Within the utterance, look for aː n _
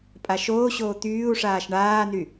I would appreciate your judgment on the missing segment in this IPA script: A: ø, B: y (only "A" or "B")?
B